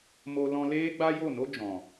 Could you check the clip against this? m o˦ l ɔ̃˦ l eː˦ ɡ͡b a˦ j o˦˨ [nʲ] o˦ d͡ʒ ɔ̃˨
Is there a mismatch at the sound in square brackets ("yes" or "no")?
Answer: yes